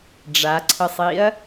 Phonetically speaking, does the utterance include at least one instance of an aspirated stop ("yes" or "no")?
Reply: yes